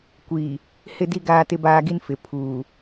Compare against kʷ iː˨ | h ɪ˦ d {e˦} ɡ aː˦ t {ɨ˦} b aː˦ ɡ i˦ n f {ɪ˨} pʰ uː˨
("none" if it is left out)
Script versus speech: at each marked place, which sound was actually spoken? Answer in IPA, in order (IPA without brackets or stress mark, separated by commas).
i˦, ɪ˦, ɪ˨